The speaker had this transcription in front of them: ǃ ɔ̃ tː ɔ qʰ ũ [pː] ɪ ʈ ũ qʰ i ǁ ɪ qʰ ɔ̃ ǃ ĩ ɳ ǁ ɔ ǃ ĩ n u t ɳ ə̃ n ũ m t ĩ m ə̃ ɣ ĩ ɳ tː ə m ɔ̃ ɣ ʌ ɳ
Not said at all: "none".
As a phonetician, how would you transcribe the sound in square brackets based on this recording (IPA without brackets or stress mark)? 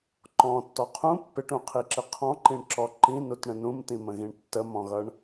pː